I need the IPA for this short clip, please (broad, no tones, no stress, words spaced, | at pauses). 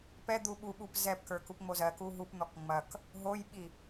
pɛd̪u ɓuɓup zɛpkə˞ kupŋ͡mozɜku ɦupn̪ɔk ŋ͡mɐk | ɦojɓi